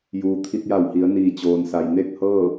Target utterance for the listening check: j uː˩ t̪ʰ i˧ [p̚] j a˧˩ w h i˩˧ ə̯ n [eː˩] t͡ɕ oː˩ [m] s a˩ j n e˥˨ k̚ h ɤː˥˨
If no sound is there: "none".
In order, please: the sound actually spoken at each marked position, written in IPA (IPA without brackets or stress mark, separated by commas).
t̚, iː˩, n